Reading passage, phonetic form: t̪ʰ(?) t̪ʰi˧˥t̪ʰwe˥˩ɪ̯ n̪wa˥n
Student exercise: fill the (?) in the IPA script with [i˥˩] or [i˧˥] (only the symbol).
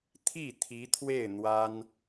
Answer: i˥˩